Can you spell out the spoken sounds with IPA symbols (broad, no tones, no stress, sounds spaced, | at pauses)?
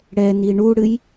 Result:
ɽ ɛ n i ɳ u ɽ ɨ j